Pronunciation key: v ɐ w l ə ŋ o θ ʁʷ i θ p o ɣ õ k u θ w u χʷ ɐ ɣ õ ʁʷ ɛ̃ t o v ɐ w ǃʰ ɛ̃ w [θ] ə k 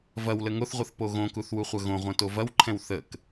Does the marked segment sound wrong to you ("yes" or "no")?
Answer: no